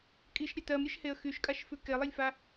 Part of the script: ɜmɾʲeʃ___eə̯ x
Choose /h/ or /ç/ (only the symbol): h